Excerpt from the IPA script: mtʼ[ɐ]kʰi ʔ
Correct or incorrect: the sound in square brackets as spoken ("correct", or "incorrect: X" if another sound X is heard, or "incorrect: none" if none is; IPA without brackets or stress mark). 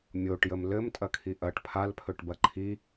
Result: correct